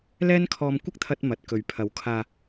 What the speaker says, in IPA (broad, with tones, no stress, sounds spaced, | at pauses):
l ɛː˥ n kʰ ɔː˧ m kʷ ɐ˥ k̚ t̪ʰ ɐ˧ t̚ m ɐ˨˥ t̚ k ɵ˨ ɥ pʰ ɐ˨˥ w kʰ aː˨